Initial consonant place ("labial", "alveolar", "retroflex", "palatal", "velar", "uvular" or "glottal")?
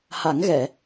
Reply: glottal